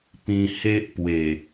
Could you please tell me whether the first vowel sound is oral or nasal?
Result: nasal